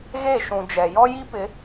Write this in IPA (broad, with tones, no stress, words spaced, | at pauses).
ɣe˦˨ ʃũ˨ d͡ʒɛ˨ jɔ˦ji˦pɪ˨˦